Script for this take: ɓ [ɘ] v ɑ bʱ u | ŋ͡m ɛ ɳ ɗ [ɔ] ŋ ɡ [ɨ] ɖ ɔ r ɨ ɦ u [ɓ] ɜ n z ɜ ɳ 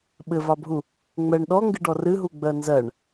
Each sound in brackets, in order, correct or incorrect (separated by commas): correct, correct, correct, incorrect